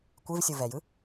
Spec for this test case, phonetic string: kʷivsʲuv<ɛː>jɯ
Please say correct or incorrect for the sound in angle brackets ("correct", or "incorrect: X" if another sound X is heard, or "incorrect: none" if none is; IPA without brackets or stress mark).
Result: incorrect: ɛ